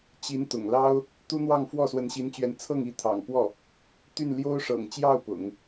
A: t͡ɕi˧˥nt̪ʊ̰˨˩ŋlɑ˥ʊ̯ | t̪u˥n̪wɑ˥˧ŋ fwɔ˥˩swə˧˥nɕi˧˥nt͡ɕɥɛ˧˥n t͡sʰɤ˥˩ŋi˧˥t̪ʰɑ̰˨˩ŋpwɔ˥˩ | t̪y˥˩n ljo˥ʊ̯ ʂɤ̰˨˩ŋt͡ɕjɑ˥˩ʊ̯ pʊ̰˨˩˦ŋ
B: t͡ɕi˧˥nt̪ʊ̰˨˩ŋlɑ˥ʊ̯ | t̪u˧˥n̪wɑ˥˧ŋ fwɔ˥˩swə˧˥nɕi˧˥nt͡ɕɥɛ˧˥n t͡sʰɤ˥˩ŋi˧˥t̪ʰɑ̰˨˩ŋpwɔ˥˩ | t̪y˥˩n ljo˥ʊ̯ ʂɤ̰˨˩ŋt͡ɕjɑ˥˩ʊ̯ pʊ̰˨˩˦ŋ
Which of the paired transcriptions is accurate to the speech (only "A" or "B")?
A